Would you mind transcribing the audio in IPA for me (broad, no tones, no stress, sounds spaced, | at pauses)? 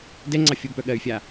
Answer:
d ɛ ŋ͡ǀ ɑ fʲ o b p œ ɠ ɜ y̯ fʲ a